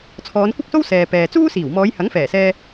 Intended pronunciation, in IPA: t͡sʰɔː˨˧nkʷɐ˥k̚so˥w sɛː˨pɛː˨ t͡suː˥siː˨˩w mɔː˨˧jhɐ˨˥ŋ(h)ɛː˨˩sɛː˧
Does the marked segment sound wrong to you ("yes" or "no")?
yes